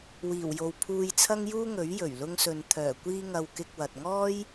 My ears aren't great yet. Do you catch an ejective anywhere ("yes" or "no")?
no